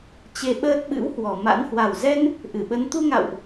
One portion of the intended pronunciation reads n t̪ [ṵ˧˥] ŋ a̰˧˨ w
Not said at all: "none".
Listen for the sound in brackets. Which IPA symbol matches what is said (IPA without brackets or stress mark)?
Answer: u˧